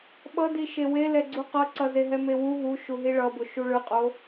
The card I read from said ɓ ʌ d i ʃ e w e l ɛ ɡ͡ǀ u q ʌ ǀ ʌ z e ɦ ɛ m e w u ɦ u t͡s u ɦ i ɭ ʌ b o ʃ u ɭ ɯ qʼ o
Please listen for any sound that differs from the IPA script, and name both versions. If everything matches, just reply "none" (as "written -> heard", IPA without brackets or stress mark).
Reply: t͡s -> ʃ